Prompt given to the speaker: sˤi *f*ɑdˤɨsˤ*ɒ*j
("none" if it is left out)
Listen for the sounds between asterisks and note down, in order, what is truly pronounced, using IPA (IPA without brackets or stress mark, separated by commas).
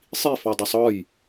f, ɒ